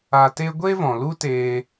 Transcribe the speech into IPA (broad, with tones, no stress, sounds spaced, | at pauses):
a˧ t e˦ ɡʷ e˦ v ɔ̃˨ l u˦ t eː˧